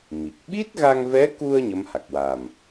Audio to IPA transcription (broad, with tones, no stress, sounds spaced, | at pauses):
m i˨˩ k̚ ɓ i˦˥ t̚ ɣ a˧ ŋ v ɛ˧˥ k u˧ ə̯ ɲ ə˧˥ m h a˨˩ k̚ w a˨˩ m